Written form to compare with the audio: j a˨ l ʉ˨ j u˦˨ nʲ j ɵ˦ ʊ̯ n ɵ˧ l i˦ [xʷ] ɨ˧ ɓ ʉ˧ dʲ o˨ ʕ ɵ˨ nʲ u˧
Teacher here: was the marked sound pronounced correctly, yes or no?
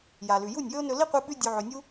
no